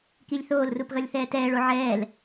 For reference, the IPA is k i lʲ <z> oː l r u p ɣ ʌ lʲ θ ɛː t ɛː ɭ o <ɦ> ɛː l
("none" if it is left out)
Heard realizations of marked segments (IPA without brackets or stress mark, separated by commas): θ, ʕ